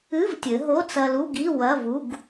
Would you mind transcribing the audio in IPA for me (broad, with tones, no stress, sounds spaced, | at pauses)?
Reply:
ɨ˧˥˧ v tʲ ɘ˩˧ ɦ o˧˥˧ t͡s ɐ˧ l u˧˥˧ ɡ i˧˥˧ w ɐ˧˥˧ v u˧˥˧ ɡ